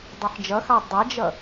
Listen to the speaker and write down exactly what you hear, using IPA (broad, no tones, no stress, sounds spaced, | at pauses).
dˤ ɛ ħ d͡ʒ ʌ x ɑ dˤ a d͡ʒ ʌ